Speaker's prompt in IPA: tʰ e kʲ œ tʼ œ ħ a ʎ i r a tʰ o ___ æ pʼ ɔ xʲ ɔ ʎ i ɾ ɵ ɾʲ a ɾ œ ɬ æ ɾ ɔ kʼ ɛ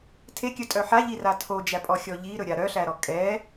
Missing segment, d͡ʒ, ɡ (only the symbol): d͡ʒ